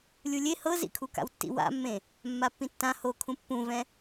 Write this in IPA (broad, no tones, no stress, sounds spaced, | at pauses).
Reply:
lʲ u lʲ e h ɤ z ḭ kʰ u k a̰ w tː ḭ w a̰ mː ẽ | mː a pː ĩ tː ã h o kʰ ũ pː ũ v ɛ̃